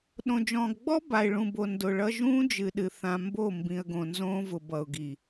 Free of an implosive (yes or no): no